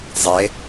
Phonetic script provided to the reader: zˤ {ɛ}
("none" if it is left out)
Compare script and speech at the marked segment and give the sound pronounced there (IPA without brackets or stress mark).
e